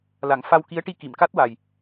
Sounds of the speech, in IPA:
la˨˩˦ŋ fa˧wki˧˥ə̯ʈi˧ ki˨˩˨mka˦˥t̚wa˨˩j

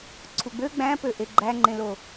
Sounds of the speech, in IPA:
ǀʰuɡ͡bø ɡ͡bæ̃pøʔe ɡ͡ǃæŋ͡ǃẽlo

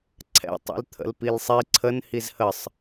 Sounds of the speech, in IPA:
ǀʰɛ̰ tˤḭlt̪ʰə̰lpilsˤi ǀʰən hizhəsˤ

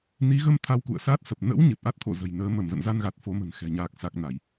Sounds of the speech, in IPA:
ni˨˦ɣə˧m t̪ʰa˧wkṵ˧˨ə̯saː˦˥t̚sə˨˩p̚ nə̰˧˥w ɲɨ˨˩t̚ʔa˦˥t̚ t̪ʰo̰˧˨zə̤˨˩jnəː˨˦ mə˧˩mzə̰˧˨nza˧nɣa˨˩t̚ fo˨˦mə̤˨˩nxɛ̤˨˩ ɲaː˨˩k̚sa˨˩k̚ na˧˩˨j

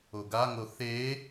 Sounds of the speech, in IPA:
oɡaŋo θe

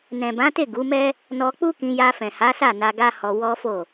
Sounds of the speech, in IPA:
nɛ̃˨bã˨˦te˦˨ ɡu˨˦mɛ˦ | nɔ˧k͡pu˦kĩ˧ ja˧fɛ̃˨ha˨˦sa˦˨ na˧ɡa˦hɔ˧ wɔ˦fo˦˨

